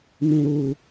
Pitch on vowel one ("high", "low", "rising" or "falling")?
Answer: high